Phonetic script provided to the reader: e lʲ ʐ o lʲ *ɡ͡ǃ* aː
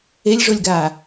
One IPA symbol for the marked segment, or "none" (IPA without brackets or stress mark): ɡ